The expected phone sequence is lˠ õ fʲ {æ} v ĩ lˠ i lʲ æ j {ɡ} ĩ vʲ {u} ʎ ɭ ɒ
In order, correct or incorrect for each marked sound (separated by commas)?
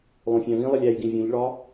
incorrect, correct, incorrect